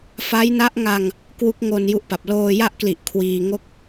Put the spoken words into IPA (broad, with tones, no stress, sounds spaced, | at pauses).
f a˦˥ j n a˦˥ ʔ ŋ a˧ ŋ | k w u˦˥ k̚ ŋ o˧ n j u˦˥ ʔ p a˨˩ p̚ l oː˧ j a˥˩ ʔ k l i˨˩ ʔ kʰ w iː˧ ŋ o˥˩ k̚